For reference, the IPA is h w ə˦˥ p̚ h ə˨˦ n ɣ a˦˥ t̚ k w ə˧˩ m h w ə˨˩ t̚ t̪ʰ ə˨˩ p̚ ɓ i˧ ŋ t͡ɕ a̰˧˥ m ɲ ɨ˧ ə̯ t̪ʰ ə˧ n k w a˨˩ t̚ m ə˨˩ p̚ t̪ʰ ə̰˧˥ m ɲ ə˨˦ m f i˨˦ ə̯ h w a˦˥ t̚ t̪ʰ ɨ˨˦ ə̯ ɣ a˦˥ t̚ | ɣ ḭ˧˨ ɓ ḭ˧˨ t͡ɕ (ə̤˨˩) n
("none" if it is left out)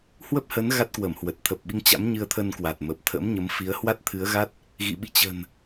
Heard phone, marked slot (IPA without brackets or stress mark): ə̤˨˩